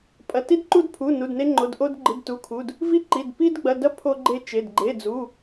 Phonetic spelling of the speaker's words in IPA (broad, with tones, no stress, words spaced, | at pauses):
pʼɐ˩˧˩ti˦dǃu˦dpʰu˩˧˩ nu˩˧˩dne˦ŋ͡ǃo˩˧˩dʔo˦d ɡ͡ǃɨ˩˧˩dtu˩˧˩kʰu˩˧˩d | vi˦ǃi˩˧˩d pi˦dɡ͡bɐ˩˧˩dɐ˦ pʰo˦ɡ͡ǃe˦t͡ʃe˩˧˩d ɡ͡ǃe˩˧˩d͡zu˩˧˩